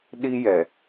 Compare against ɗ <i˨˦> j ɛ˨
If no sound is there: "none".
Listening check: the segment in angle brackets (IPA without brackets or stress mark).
i˦